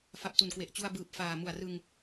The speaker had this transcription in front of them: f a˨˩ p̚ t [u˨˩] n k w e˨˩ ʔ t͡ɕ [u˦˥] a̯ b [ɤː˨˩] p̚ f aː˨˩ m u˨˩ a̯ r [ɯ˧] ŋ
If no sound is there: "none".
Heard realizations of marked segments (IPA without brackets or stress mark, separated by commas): u˨˩, u˧, ɯː˨˩, ɯ˧